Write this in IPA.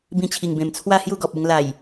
bĩ˧t͡ɕʰi˨˩ŋbẽ˨˩m t͡sʰwa˥˧ hju˥˧ɡɔ˨p̚u˧ŋ la˨˩j

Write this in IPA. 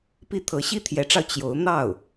pi˥ t̪ʰɤ˧˥ɕi˥t̪ʰjɛ˧˥ʈ͡ʂɑ˧ʊ̯ t͡ɕjo˧˥ʊ̯ n̪ɑ˥˩ʊ̯

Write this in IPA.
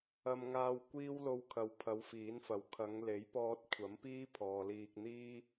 ɐ˧mŋaː˧w kʷiː˥wlo˧wkʰɐ˨wpʰɐ˨˧w fiː˨˥nfɐ˨w kʰɐ˨˧ŋle˨˥jpɔː˧t̚ kʷʰɐ˨˥mpiː˥ pʰɔː˨liː˧k̚ n̪iː˥

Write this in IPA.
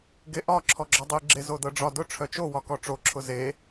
ɡeʔɒ ǁʰɔɡ͡ǁɒdˤi ɡ͡ǁezodɤɖ͡ʐɒ dʊ ʈ͡ʂʰœt͡ʃo wɒkɔʈ͡ʂo ǁʰʊze

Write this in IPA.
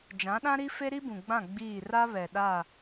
d͡ʒã˨˦ɗã˦ɾi˦ fe˦ɾi˦bũ˨ɡ͡bã˦˨ ɡ͡biː˦˨ ra˦βɛ˨ɗa˦˨

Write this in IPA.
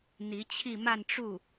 n̪i˧˥t͡ɕʰi˥˧ ma˥˧n ʈ͡ʂu˥˩

